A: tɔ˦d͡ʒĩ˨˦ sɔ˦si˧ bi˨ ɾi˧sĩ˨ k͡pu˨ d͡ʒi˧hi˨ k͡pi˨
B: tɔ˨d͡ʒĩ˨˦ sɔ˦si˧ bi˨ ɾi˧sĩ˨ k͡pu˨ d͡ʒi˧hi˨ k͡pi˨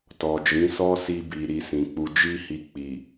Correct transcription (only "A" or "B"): B